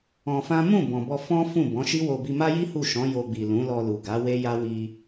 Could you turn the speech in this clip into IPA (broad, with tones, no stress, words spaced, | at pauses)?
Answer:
ɔ̃˧fã˦ mũ˦˨ bɔ̃˨bɔ˧ fɔ̃˦fũ˦˨ bɔ̃˨˦ʃi˦wo˧ bi˧ma˦ji˦ hu˦˨ʃɔ̃˨˦ jo˧ɡ͡bi˨ lũ˨˦lɔ˧lu˨ɡa˨˦ we˦ja˦wi˧